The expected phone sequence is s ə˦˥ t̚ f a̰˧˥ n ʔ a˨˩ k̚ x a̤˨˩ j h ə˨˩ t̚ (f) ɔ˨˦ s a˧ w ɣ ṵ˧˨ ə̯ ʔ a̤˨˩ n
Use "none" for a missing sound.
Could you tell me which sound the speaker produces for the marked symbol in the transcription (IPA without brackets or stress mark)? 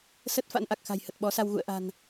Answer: ɓ